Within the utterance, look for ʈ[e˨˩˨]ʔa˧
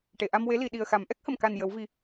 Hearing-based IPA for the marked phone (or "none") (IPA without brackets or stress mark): e˨˩˨